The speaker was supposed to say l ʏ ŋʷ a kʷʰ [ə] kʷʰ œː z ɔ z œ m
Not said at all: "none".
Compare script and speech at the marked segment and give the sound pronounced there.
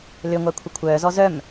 ə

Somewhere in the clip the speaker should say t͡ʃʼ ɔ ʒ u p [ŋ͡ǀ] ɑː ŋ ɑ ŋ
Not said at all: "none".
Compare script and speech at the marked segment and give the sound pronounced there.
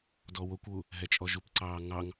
ǀ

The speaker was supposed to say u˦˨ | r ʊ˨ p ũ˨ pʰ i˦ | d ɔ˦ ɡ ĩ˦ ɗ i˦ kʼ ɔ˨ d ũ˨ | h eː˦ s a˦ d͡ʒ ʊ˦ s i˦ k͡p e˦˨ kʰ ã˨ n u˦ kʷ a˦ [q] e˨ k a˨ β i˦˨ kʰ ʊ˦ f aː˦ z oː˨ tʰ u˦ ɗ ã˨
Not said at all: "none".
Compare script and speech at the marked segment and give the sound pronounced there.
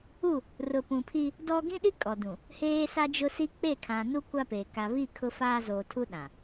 p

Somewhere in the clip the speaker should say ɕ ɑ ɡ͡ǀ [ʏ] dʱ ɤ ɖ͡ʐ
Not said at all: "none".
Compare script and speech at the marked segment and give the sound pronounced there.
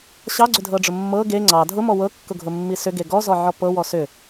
ʏ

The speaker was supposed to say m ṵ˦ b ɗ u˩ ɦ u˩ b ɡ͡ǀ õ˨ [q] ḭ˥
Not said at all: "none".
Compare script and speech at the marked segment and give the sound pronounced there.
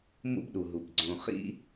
χ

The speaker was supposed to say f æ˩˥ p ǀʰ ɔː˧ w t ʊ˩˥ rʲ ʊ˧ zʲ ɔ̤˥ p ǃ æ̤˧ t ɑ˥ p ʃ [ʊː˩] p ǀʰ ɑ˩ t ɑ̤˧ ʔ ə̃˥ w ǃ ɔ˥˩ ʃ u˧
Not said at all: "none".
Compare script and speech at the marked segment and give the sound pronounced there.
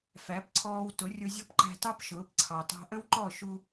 ʊː˩˥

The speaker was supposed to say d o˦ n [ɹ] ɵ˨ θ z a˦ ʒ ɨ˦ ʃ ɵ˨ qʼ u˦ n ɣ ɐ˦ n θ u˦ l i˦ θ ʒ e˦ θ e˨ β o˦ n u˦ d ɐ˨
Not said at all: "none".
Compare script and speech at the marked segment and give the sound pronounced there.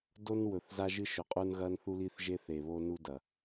w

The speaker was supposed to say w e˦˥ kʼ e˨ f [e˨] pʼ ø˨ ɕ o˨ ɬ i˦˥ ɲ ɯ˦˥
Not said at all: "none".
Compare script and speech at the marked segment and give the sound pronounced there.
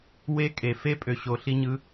e˦˥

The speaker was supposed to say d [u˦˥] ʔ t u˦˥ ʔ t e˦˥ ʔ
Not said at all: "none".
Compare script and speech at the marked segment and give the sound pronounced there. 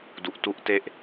u˨˩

